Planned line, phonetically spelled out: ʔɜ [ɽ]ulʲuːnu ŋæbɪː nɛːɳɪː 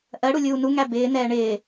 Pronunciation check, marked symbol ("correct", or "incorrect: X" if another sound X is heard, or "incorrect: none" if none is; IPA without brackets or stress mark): correct